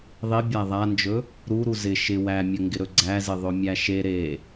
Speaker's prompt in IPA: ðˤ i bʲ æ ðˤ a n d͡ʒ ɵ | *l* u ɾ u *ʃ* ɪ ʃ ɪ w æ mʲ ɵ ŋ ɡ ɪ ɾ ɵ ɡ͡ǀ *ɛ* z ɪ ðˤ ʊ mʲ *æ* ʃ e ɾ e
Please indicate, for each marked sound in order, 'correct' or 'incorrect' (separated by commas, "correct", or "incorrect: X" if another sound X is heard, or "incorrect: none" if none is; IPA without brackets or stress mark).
incorrect: ɾ, incorrect: z, incorrect: æ, correct